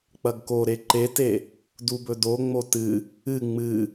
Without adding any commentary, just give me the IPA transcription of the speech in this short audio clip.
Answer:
k͡pɐɡkoɾe ǃete | dubɵdo ŋ͡motɨ | ɨ ŋ͡mɨ

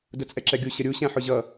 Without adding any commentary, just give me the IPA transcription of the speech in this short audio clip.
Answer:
dʊt͡sʼɛǁɛɡʲu ɕəɾʲu ɕæ̃ħʊʑʌ

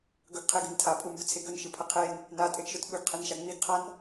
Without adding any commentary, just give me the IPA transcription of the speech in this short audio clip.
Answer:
ɡɵɡqʰeɡɨn tʰapʼumbɵt͡sʰe ɡɵnʃɨpʰɐ qʰen | natʼeɡʃɵt ɓɵɡqʰenʃa ŋ͡miɡqʰan

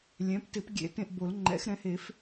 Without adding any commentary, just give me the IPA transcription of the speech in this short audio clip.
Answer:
lʲɛ̃˩˥p tɪ˨˩˦pɡʲḛ˨˩˦ tẽ˦˨ʔbo˨˩˦lŋ͡ǃɛ̰˩˥xɾɛ̃˩˥ he˨˩˦f

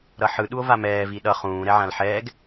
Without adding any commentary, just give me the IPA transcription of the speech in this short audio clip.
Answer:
ɾʌħɯ ɗuo̯vamɛː viɗʌ χũːɾɛʕãl ħɛːɡ

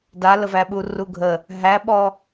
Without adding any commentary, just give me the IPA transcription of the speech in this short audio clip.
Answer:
daləvæɓu ruɡʱə | ɦæɓɔ

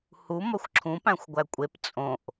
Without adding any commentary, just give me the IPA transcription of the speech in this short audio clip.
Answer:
hu mɒxʷǁʰũ pæ̃xʷɡʷækʷʼep t͡sʼõʔ

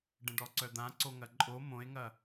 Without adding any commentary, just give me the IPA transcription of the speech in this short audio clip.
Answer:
ɖə̃ɖɔǀœd̪ã ǀoŋɐǃʼo mõe̯ŋɐ

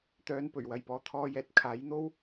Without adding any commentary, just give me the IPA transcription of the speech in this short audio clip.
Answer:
t̪œː˧n pɵ˨˩ɥwɐ˨jpɔː˨˧t̪ʰɔː˧ jɛː˨t̚kʰaː˨˥jn̪o˥w

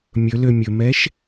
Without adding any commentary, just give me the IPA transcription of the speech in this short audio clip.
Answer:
mʲɵlø mʲɵmɛʃ

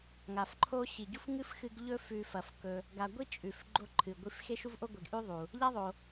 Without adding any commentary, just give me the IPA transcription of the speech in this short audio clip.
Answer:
ŋa˩fǃʰo˦ ɕi˩ɟu˥fŋɨ˥f xɨ˦ɡʎɵ˥ fʉ˨fɐ˩fkɵ˨ | ɡa˨ɡʷi˥ t͡ʃʼʉ˩fɡ͡ǃo˦ ǃʰɨ˩ɡʷi˦f xe˥ʃu˥vʔo˥ɡʷe˨ɡ ʔʉ˥ðˤu˩ | ʎa˥ðˤo˨

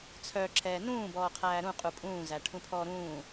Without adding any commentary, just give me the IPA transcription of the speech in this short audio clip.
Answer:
t͡sʰœ ǁʰɛːnũː bɔːqʰæːɾũ qʼupʼũː zæʈʰũpʰɔːɾũː

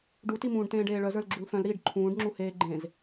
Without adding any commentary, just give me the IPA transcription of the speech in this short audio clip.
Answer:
ɖutimũːɖtẽːɖ eːɭœzə˞l ɡ͡ǁulfœ̃lɾiːɖ ǃʰũːɖŋ͡ǁu heːɡ͡ǃẽz

